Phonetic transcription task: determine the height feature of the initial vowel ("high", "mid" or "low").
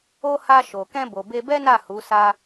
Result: mid